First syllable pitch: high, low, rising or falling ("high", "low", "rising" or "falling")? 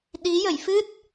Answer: rising